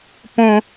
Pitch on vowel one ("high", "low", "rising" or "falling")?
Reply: high